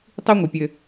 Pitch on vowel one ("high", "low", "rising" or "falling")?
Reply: high